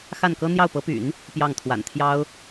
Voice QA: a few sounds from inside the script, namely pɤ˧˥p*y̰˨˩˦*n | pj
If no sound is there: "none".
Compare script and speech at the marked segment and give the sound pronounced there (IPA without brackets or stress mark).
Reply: y̰˨˩˦